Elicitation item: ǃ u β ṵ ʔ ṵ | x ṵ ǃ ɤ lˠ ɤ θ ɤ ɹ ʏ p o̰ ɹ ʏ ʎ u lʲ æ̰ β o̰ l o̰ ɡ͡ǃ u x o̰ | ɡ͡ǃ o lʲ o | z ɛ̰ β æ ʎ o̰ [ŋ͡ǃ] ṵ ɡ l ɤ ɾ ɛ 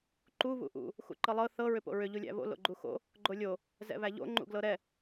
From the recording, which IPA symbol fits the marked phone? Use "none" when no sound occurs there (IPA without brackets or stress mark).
ŋ͡ǃ